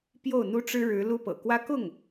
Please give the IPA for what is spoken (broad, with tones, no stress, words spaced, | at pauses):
pjo˥˩ʊ̯n̪u˥ʈ͡ʂɻ̩˥ɻɻ̩˧˥ lu˥pɤ̰˨˩kwä˥ kʊ˥˩ŋ